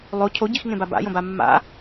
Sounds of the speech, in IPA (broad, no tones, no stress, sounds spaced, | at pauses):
lˠ o cʰ o ɟ i x ŋ ẽ b a b a̰ j õ b a mː a̰